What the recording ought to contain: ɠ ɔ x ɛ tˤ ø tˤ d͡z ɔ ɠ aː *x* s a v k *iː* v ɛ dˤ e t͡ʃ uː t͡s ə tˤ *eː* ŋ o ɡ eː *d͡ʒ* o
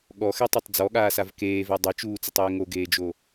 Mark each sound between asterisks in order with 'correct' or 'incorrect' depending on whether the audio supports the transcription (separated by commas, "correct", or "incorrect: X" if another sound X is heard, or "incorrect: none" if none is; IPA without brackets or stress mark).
incorrect: none, incorrect: eː, correct, correct